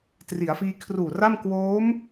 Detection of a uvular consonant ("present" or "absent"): absent